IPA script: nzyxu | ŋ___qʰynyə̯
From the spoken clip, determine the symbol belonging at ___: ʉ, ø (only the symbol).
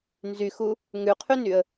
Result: ʉ